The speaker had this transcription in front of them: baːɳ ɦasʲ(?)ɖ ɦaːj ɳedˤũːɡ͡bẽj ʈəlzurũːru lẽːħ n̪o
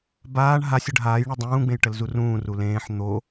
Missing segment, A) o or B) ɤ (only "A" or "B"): B